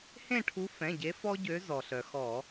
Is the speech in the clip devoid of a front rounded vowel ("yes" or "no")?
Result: no